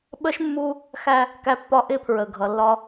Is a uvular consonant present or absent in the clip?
absent